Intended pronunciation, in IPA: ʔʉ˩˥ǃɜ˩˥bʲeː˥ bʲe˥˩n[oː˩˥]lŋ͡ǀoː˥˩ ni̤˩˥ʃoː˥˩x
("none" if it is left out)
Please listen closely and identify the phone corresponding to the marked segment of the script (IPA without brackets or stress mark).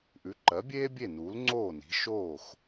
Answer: uː˩˥